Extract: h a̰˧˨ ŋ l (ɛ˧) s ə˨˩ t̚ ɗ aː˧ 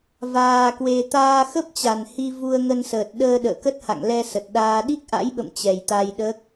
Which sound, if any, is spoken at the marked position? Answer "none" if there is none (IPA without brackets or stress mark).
ɛ˧